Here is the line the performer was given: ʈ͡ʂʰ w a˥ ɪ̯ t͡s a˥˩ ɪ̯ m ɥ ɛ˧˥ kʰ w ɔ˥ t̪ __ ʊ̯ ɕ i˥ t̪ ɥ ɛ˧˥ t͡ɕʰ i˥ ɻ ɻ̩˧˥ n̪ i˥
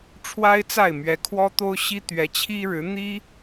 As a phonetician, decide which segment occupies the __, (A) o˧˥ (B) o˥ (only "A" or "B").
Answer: B